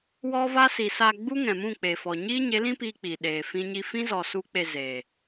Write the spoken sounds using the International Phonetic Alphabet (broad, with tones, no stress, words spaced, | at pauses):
wɔ˦va˦si˨ sa˧ɡ͡bu˦ŋɛ̃˨mũ˦˨ k͡pe˨fɔ˨ ɲiː˦ɲe˨˦lĩ˦ piː˦k͡pi˨ɗeː˨ fĩ˦ɲi˦ fĩ˦zɔ˨ su˦k͡pe˧ze˨